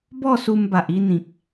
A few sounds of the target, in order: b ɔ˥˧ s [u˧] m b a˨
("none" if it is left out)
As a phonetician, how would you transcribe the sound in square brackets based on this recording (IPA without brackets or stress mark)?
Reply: u˧